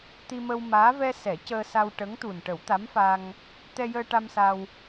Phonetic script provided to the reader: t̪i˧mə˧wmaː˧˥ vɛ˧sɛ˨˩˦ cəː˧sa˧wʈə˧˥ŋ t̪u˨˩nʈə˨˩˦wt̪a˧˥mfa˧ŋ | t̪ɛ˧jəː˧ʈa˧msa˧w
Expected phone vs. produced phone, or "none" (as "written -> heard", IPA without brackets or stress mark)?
none